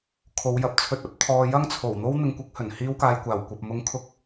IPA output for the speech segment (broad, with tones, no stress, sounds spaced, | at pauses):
kʰ o˨˧ w j ɐ˨ p̚ t͡sʰ ɵ˧ t̚ ɐ˥ p̚ t̪ʰ ɔː˧ j ɐ˥ ŋ t͡sʰ o˨˩ w n̪ o˥ w n̪ ɪ˧ ŋ kʷ ɪ˧ k̚ h ɵ˨˩ n h iː˥ w k aː˧ j kʷ aː˨˩ w kʷ ɐ˨ p̚ m ʊ˥ ŋ kʰ ʊ˥ k̚